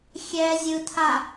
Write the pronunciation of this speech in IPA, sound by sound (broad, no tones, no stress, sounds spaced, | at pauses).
xʲ ɛ zʲ ɯ tʰ a